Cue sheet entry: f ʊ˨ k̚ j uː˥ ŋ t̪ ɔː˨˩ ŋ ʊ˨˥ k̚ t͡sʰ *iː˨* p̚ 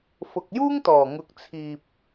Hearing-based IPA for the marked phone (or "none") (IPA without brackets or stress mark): iː˨